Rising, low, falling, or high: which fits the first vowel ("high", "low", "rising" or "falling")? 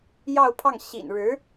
falling